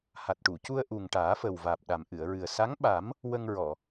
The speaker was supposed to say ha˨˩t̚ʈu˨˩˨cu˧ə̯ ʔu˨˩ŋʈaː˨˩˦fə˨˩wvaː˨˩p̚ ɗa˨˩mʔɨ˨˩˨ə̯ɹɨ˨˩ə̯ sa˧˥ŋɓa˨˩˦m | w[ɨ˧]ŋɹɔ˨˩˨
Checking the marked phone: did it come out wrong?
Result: yes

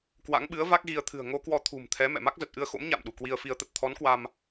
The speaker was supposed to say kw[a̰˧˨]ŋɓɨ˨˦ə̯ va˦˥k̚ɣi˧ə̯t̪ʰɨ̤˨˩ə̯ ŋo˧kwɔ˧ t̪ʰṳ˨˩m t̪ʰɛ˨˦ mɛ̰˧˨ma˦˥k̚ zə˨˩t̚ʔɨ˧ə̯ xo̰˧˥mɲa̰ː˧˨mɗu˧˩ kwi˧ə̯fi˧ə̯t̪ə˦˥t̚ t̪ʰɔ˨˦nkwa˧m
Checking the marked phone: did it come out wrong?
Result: yes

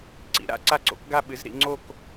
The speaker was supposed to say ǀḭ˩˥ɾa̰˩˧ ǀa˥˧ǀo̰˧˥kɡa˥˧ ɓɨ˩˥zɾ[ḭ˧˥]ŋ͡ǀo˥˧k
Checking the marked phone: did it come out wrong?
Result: yes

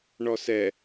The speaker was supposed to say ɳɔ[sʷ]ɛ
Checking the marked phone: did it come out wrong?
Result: yes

